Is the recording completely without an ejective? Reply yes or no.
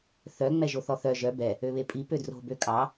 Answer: no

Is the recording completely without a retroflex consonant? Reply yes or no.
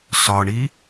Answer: no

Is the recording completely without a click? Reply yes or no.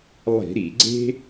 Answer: no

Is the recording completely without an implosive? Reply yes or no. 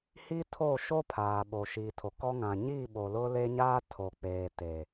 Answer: no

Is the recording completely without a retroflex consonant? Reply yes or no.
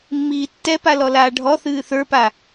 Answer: no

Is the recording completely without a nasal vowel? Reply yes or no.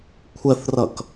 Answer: yes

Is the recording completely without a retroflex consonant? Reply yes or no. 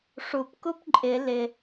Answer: no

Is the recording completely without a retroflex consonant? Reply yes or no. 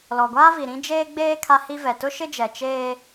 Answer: yes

